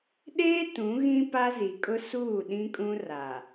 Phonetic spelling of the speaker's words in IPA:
ɗ eː˦ t ũ˨˦ ɣ ĩ˦ p a˦ z i˨ kʼ ʊ˦ s uː˦˨ ɗ ĩ˦ kʼ ũ˦ r a˨

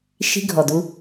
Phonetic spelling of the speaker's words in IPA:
ʃ i̤˧ ɡʱ ɔ˨ d u˧

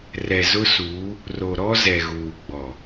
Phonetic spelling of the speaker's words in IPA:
r ɛ˨ z ʊ˦ s uː˨˦ | r o˨ ɾ ɔ˦ z ɛ˨ ɣ uː˨ ɡ͡b ɔ˨

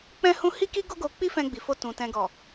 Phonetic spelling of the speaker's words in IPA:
k͡p ɛ̃˧ h ũ˧ h i˦ k i˦ ɡ o˦ ɡ o˧ k͡p i˦ f ɛ̃˧ ɡ͡b i˨ f o˧ t ũ˨ t ɛ̃˨ ɡ ɔ˨

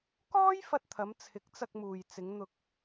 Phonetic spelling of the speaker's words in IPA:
k ɔː˥ j f ɐ˧ t̚ t̪ʰ ɐ˨˧ m t͡sʰ ɪ˨˥ k̚ t͡s ɐ˧ k̚ m uː˨ j t͡s ɪ˨˧ ŋ n̪ ʊ˧ k̚

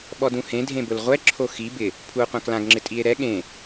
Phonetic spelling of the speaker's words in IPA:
ɓ ɔ d ũ h ẽ dʱ ẽ b ʊ l ʁʷ ɛ ǁʰ o x i b ɪ | pʰ u o̯ qʷ ã k l ã ɡ ŋ͡ǁ ɪ tʼ i e̯ ɾ ɛ ɠ ẽ

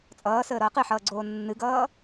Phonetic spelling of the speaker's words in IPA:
t͡sʼ ʌː s əː ɾ ʌː q ɨ ħ ʌː ɡ͡ǀ oː nː ɨ ɡ ʌː

